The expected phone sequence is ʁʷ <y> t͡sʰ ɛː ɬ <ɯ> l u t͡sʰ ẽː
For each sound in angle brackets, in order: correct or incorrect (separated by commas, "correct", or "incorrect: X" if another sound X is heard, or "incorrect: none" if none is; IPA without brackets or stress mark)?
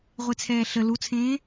incorrect: e, incorrect: ə